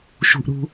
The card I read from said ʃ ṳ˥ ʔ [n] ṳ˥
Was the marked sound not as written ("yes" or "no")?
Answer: yes